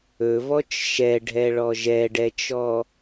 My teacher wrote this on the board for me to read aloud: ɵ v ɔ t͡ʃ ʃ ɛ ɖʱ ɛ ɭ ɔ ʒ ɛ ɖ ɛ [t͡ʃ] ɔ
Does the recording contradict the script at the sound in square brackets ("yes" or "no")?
no